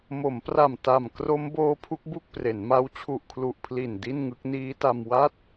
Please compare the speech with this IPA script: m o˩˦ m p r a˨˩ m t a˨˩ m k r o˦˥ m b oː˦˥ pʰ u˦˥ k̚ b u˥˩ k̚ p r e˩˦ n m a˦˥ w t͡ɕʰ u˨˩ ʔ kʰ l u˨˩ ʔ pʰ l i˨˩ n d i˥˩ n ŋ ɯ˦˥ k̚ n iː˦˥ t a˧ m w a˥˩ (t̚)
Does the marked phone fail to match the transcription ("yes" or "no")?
no